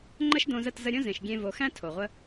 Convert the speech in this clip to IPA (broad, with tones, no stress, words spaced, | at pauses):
ŋ͡ǃə˦ʃdõ˧zə˦˨t zə˧ɾʲõ˦zẽ˨ʃ ɡʲẽ˧vo˨xæ̃˦ tʰo˨ʁʷə˦